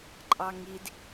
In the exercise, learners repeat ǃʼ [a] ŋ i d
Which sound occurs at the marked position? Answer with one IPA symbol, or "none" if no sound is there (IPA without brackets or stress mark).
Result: ɑ